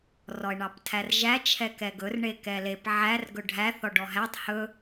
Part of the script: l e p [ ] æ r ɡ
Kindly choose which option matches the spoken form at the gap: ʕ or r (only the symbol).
ʕ